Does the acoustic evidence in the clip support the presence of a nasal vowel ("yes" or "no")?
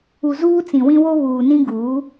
yes